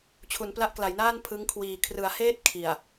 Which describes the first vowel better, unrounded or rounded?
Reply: rounded